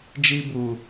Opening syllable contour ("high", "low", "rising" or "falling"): high